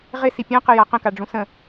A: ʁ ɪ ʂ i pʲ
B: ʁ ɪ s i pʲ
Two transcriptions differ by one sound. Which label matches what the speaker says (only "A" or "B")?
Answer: B